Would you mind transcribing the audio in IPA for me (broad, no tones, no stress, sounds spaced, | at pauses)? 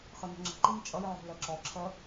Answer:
χ ə n ə̤ ŋ͡ǁ ə̤ ǃ i n t͡ʃʼ ʌ j ʕ o̤ l ɜ ǁ ɔ ǁʰ ɜ